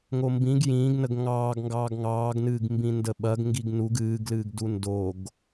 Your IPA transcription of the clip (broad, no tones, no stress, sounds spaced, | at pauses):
ŋ o m b ĩ ɡ j ĩː ɡ n ə ɡ ŋ ɑː ɡ ŋ ɡ ɑː ɡ ŋ ɑː ɡ n ɨː ɡ m b ĩ n d ə ɓ ɐ ɡ ŋ ɡ i ɡ n u ɡ ɨː ɡ l ɨː ɡ d u n d o ɡ